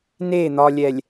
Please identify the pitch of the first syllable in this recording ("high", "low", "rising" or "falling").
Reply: falling